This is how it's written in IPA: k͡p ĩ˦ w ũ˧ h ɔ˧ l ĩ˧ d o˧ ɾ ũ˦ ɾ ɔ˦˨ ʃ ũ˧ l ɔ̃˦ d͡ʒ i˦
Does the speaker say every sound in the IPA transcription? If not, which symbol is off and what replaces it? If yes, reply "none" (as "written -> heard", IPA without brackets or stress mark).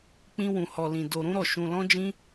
i˦ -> ĩ˦